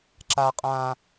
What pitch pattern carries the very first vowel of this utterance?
high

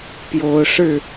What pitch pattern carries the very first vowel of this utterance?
rising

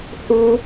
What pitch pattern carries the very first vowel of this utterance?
high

